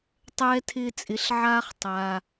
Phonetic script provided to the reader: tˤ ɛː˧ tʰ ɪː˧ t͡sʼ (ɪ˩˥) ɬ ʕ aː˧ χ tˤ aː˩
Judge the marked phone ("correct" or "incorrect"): correct